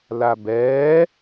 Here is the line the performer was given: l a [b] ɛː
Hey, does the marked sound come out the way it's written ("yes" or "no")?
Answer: yes